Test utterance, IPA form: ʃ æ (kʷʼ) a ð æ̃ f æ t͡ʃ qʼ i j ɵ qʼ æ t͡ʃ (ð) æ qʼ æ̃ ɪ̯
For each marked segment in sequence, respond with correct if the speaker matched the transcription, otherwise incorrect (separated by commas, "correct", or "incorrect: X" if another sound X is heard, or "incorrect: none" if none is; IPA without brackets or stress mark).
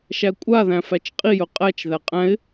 correct, correct